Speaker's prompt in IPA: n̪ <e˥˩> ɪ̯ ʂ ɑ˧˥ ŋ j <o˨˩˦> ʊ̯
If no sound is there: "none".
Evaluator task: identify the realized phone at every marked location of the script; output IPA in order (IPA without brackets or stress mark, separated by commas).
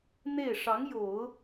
e˥˩, o˨˩˦